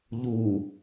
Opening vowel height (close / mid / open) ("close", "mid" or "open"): close